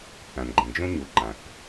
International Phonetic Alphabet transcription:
θã˨nɡ͡ǃẽ˨ d͡ʒõ˦ɲu˨ ǃã˨θ

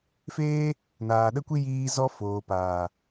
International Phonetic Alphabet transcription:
feː˦ | naː˨ɗə˧kʷi˧ jiː˧ zɔ˧ foː˨paː˨

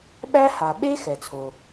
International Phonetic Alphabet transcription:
ɓæ˥ha˩ ɓe˥ xɛ˩t͡sʰo˩

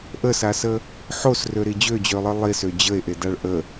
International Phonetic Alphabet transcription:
ʔəsasə | ħosrøɾi d͡ʑød͡ʑølˠɯ lˠisø d͡ʑəe̯ʔedaɭ ʔə

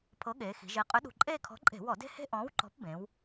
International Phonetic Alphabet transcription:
pʰɤ˨˥ɠeː˩˧xi̤˩˧ ʒe˩˧qʼʏ˨˥ɗṳ˨˩ ǃʼeː˦˨kʰɔ̤˨˥ ǃʼe̤˧˩˧wɔ˧˩˧de̤˦he̤˦ ʔɔ̃ː˨˥wǃɔ̤˨˥pbẽ˩˧w

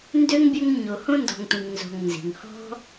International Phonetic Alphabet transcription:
ndø˥ŋbʲø˦ŋ ɲo˩hõ˥ndɔ̤˨ŋtʷĩ˩ŋ nzo̤˨ŋnzi̤˩ŋhɔ̤˥

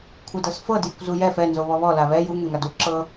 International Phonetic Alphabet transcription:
kʷʰɯdɤsfɤ djɯkʷzujɛf ɛ nzoβɔβɔ laβɛ ju ŋɛŋadu ǁɤ

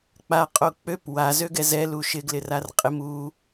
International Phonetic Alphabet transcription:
k͡pa qʼok͡pøp wa zøɡɛzɛ luʃɪɡlɪ rarqʼɪm u

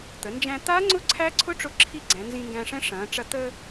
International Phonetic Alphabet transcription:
t̪ə˩˧nd͡ʒæ̃˧t̪aː˦˥ŋ͡ǀʊ˦˥ ǀʰæ˦˥ǀʰʊ˦˥ʈ͡ʂʊ˧ ǁʰi˦˥ɡ͡ǀæ̃˩˧ nzĩ˧ŋɡæ̃˧ʂɛ̃˦˥ ʂɐ̃ː˩˧ʈ͡ʂɐ˧ t̪ə˧

